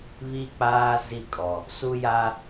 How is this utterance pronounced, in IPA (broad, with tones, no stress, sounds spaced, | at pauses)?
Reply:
β i˦ k͡p aː˦ z i˦˨ kʼ ɔ˨ | s u˦ j a˦